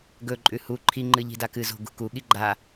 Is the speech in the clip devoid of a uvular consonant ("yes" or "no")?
yes